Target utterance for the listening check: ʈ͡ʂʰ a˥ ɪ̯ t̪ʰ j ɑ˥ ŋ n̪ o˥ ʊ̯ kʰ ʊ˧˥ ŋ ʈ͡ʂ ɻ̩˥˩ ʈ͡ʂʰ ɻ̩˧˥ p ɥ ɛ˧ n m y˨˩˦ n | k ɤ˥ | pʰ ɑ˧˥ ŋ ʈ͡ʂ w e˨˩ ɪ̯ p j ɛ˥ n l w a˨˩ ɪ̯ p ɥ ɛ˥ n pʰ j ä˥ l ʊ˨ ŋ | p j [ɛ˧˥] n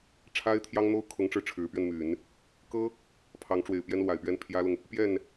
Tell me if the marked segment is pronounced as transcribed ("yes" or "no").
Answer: no